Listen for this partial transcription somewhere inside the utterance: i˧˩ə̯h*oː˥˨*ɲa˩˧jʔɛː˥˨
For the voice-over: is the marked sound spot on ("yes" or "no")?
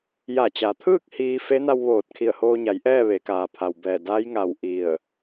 no